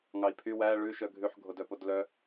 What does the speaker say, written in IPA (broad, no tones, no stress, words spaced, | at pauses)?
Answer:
ŋɑi̯pʰy wæ ɭʉ ʃœɡʱʉħ ɡʱodœpodlœ